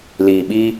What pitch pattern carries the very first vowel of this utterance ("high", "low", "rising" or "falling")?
low